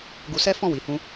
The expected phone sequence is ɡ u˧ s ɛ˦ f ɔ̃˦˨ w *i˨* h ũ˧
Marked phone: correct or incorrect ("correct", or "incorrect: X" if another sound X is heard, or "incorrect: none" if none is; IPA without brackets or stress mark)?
correct